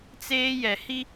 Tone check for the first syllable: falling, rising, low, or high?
high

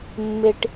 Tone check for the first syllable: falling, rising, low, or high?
low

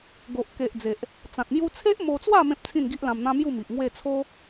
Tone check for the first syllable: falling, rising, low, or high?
low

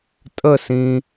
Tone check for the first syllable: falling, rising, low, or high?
falling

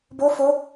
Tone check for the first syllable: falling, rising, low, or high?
high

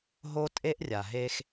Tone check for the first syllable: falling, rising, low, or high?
high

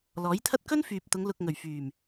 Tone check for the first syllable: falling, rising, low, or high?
rising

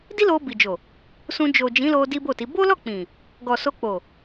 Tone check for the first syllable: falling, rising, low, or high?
high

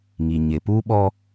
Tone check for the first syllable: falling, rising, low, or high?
low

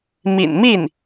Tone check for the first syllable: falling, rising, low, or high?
low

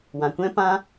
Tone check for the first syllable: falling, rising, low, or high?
low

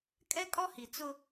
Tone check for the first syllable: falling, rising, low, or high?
high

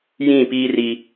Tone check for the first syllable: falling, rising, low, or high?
falling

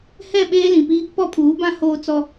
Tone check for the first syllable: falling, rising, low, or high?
falling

